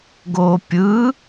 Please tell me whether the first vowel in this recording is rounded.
yes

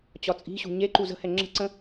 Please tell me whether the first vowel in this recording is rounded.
yes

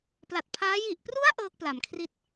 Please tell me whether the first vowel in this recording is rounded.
no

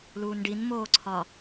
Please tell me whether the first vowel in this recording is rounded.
yes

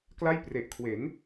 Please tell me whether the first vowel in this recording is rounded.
no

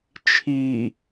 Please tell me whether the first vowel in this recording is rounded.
no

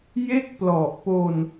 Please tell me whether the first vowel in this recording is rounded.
no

